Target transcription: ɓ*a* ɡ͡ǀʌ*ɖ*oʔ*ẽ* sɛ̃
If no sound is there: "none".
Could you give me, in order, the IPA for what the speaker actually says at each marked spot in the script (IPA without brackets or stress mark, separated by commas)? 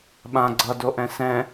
ã, d, ɛ̃